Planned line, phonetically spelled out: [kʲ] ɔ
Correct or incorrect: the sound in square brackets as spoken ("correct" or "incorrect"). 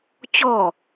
incorrect